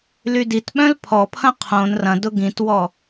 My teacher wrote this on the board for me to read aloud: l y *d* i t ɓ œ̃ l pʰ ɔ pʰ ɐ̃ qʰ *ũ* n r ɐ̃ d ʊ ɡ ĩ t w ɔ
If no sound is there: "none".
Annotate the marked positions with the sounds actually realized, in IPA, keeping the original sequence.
d, õ

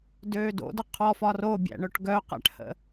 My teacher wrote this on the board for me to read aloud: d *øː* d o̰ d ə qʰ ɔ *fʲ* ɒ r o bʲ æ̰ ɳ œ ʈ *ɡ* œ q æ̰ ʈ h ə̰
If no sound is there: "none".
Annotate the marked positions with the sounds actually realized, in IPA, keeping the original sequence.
øː, f, ɡ

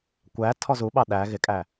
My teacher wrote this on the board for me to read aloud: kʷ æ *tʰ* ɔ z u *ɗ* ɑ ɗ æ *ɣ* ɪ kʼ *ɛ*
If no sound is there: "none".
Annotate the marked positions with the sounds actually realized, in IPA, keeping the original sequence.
tʰ, ɓ, ɣ, æ

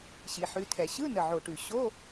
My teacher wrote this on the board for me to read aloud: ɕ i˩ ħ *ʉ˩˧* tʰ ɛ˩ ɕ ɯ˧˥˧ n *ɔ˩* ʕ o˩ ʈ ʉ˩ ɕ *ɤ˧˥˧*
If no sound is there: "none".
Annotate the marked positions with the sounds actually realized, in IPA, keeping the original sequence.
ʉ˩˧, ə˩, o˧˥˧

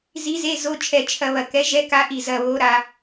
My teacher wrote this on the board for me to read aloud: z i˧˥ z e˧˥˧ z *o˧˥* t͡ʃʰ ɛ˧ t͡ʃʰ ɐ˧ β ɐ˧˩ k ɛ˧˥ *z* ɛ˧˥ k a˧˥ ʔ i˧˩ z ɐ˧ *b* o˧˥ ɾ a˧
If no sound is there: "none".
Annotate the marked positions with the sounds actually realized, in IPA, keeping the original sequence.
o˧˥˧, ʒ, β

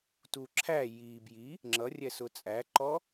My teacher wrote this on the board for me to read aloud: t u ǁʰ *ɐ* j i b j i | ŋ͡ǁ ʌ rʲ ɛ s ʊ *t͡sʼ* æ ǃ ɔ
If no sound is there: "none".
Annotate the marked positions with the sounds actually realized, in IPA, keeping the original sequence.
æ, t͡sʼ

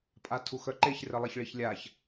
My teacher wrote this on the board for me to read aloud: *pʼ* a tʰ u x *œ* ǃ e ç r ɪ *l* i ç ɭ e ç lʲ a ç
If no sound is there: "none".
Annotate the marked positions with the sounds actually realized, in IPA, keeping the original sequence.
pʼ, œ, lˠ

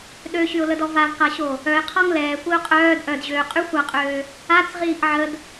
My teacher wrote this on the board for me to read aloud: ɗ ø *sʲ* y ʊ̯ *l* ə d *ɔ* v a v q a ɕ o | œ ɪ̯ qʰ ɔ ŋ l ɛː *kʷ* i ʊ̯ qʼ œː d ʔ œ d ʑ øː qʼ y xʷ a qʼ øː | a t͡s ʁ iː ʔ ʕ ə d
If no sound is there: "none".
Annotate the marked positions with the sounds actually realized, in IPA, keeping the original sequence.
ɕ, l, ɔ, kʷ

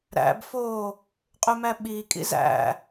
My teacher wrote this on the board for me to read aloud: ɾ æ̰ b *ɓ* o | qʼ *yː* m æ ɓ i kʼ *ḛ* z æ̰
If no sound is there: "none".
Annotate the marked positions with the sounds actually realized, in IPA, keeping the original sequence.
f, y, ḭ

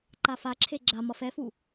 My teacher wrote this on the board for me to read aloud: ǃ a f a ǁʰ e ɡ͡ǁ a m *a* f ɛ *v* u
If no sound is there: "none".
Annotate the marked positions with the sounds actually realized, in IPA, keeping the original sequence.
ʌ, f

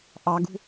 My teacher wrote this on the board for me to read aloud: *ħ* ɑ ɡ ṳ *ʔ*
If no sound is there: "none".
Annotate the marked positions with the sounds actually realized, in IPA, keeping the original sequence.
ʔ, none

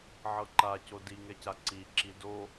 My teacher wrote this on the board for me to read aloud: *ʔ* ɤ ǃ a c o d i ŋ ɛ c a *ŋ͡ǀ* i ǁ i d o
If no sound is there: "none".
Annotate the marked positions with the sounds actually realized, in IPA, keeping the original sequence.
ʕ, ǀ

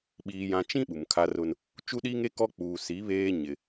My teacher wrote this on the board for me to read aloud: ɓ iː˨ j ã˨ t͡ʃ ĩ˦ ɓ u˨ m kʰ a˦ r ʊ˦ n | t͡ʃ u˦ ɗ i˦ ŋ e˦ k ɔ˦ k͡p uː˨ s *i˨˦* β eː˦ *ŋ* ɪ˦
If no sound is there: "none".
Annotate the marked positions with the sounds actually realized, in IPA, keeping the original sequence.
i˨˦, ɲ

